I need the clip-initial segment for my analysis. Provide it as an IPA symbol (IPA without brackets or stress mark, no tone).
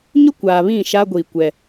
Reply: ɲ